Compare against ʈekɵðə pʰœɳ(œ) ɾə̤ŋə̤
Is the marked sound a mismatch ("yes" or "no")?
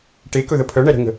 yes